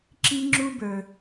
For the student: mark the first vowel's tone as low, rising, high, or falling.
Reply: high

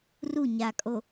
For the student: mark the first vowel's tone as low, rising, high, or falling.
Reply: falling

